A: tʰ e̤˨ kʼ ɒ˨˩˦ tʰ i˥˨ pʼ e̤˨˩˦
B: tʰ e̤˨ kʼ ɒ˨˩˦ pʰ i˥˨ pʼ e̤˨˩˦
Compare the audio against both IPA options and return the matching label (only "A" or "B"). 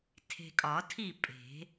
A